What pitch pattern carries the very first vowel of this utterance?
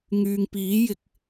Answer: low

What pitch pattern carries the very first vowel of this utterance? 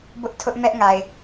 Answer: high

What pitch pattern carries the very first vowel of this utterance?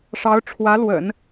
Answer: rising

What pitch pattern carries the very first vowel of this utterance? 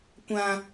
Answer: low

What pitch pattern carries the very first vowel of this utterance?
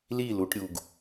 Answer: falling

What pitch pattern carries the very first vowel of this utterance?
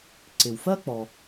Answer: low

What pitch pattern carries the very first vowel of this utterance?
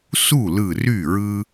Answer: falling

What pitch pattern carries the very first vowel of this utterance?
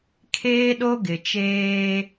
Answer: high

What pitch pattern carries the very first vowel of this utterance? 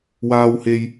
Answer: high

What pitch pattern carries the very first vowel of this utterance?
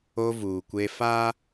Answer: high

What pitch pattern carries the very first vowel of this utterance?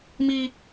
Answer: high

